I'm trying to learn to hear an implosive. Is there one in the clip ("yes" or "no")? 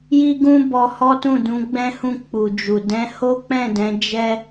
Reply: no